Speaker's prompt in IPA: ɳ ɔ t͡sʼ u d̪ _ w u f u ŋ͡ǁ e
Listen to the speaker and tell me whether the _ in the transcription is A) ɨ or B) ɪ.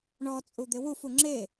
B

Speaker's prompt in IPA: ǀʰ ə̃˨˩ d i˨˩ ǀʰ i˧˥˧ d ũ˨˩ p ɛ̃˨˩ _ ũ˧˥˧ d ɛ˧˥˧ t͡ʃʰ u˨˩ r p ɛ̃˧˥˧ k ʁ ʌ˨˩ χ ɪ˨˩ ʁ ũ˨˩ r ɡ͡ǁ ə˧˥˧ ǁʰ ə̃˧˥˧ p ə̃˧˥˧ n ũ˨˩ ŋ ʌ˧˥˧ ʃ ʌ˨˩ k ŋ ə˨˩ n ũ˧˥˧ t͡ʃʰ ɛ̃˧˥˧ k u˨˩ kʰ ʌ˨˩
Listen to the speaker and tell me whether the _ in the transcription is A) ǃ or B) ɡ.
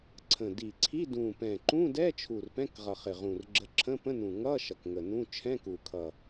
A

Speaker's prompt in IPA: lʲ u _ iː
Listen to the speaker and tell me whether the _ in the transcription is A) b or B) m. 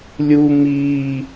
B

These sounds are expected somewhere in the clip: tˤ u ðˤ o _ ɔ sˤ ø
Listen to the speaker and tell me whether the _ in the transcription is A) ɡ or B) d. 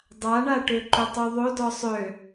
B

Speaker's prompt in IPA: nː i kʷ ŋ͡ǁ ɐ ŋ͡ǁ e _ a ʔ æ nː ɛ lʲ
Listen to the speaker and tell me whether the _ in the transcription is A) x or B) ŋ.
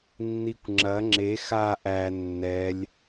A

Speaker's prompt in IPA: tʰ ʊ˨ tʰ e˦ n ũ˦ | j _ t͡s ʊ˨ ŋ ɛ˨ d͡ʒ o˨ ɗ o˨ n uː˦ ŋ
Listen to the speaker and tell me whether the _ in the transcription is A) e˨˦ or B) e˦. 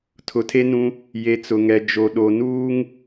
A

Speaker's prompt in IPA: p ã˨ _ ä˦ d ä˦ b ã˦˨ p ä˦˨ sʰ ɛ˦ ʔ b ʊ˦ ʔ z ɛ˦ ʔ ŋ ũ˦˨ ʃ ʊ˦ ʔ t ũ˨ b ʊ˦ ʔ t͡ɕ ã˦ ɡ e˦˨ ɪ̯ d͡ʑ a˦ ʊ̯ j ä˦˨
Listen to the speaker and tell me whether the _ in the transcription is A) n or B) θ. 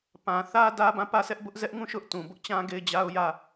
B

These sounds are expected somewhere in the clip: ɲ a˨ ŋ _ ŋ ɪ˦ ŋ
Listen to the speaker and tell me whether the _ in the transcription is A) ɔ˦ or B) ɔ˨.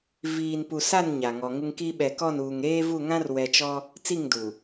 B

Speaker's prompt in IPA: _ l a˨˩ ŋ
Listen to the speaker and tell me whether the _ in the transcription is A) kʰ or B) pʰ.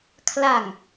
A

